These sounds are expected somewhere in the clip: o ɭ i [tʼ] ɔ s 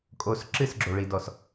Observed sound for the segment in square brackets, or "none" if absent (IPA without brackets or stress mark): d